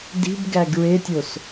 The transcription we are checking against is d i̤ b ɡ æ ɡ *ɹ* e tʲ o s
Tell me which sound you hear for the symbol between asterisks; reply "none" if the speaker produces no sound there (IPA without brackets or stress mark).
ɹ